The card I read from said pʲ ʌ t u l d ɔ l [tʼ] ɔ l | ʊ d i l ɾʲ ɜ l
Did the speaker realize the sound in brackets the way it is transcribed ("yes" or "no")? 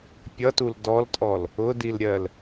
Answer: yes